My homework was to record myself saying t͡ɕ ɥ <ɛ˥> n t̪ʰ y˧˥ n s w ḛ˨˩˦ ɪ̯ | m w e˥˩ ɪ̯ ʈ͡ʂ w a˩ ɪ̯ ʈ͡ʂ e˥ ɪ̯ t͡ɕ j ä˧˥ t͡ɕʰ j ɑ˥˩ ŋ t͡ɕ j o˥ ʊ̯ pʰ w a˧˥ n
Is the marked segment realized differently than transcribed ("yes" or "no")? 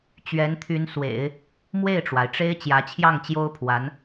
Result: yes